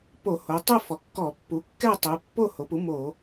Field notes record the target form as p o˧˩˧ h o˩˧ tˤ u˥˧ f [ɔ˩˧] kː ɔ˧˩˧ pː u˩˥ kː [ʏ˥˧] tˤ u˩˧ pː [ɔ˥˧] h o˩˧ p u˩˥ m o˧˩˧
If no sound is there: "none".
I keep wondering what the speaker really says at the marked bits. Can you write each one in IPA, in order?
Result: ɔ˩˧, ɛ˥˧, o˥˧

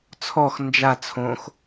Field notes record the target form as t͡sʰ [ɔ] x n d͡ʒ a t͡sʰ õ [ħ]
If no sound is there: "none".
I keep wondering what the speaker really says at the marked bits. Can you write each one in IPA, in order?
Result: ɔ, x

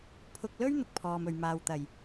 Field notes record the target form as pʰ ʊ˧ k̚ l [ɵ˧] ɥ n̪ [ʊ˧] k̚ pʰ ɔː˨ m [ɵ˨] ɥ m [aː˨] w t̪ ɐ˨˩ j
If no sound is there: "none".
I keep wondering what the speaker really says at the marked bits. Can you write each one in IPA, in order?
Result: ɵ˥, ʊ˨, ɵ˨, aː˨

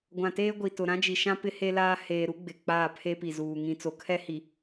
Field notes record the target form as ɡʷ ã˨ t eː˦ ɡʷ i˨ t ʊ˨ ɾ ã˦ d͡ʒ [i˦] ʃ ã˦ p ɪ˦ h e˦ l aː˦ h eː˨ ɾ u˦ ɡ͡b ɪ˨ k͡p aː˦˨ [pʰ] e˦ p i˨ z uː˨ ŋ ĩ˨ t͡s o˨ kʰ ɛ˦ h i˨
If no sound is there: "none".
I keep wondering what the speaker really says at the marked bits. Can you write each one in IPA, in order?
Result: i˨, pʰ

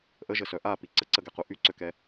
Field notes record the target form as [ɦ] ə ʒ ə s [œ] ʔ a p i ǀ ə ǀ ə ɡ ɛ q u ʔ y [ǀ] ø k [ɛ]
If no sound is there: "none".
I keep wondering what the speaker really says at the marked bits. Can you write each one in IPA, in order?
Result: ʔ, œ, ǀ, ɛ

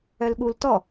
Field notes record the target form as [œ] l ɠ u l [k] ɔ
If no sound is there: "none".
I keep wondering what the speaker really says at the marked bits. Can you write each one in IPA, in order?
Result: œ, t

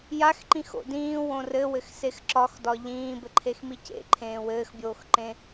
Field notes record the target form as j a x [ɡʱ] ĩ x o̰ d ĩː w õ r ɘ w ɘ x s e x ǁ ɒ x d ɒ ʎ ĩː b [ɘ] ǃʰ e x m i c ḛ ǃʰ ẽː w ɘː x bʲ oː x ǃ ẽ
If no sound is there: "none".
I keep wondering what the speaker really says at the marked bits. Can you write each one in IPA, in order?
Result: ǃ, ɘ

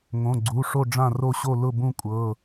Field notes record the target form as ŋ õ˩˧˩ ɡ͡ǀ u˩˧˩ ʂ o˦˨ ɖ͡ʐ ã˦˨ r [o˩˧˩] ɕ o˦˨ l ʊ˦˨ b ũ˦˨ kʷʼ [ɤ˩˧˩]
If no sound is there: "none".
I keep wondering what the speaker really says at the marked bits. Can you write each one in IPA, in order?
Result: o˦˨, ɤ˩˧˩

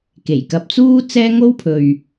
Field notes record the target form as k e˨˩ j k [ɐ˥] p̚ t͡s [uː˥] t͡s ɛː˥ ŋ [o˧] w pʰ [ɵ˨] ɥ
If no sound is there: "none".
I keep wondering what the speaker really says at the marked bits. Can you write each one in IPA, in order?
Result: ɐ˨, uː˥, o˥, ɵ˨

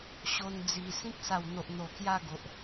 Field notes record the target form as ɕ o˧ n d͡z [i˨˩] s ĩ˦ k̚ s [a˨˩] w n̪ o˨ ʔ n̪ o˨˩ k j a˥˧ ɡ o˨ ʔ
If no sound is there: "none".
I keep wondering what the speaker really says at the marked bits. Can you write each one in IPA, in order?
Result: i˨˩, a˨˩

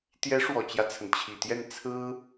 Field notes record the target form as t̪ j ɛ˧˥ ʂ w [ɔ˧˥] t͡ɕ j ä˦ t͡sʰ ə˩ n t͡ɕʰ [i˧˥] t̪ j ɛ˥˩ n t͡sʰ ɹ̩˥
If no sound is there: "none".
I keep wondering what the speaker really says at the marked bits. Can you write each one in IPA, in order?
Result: ɔ˨˩, i˨˩

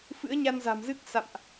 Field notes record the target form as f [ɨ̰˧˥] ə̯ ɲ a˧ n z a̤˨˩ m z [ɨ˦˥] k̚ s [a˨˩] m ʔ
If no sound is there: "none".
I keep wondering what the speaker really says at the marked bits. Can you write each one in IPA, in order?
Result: ɨ̰˧˥, ɨ˦˥, a̰˧˨

